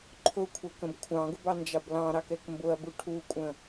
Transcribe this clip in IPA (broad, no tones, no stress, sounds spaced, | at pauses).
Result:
ǃʰ ʊ kʷʰ ɛ k ə̃ b kʷʰ ɑ̃ ɡ ʊ b ɑ n d͡ʒ ɑ b l ɑ̃ ɾ ɑ k ɛ k m b ʊ ɐ̯ b u ʈʰ u kʷʼ ə̃